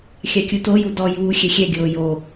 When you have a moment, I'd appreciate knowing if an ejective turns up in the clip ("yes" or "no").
no